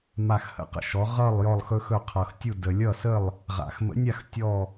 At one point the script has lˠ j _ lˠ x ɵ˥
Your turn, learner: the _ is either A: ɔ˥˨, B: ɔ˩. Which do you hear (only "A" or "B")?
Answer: A